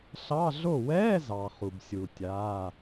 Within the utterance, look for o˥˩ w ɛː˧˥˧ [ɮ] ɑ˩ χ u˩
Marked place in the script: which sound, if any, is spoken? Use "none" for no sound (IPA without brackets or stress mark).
z